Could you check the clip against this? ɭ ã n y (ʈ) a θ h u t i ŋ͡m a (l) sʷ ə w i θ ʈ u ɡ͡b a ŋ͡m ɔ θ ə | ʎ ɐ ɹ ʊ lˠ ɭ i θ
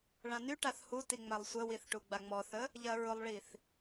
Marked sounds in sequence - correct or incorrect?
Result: correct, incorrect: lˠ

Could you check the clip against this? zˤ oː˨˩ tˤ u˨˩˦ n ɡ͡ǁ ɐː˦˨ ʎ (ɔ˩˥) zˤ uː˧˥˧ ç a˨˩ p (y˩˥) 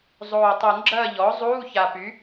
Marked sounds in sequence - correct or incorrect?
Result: correct, correct

